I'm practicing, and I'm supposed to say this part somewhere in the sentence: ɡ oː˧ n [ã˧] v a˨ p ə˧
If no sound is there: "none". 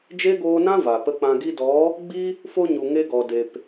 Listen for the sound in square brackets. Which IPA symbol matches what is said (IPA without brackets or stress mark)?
ã˦